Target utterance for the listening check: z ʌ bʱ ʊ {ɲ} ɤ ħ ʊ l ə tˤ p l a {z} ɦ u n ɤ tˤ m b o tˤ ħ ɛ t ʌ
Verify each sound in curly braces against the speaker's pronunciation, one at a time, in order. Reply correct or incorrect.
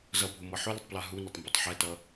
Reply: incorrect, incorrect

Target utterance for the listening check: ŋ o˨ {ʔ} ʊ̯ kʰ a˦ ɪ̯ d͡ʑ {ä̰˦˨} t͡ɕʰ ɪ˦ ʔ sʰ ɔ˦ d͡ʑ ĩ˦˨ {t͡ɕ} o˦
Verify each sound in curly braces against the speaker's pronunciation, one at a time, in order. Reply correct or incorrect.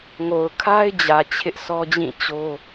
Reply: incorrect, incorrect, correct

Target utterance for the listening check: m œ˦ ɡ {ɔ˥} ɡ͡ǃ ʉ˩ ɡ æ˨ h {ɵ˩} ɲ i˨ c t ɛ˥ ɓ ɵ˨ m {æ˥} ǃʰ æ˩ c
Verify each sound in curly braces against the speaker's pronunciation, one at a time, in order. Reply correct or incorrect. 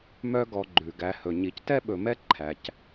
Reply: incorrect, correct, incorrect

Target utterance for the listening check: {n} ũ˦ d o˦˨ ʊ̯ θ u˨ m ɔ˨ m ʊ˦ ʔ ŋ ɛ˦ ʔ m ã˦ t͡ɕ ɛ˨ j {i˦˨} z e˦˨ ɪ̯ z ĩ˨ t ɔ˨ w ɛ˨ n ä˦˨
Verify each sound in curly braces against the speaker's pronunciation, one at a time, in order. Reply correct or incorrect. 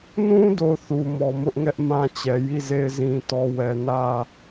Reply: correct, correct

